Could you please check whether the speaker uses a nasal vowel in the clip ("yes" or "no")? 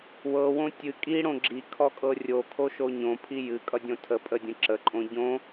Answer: yes